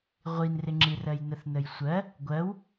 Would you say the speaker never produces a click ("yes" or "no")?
no